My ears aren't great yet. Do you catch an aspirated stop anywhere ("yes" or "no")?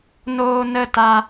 no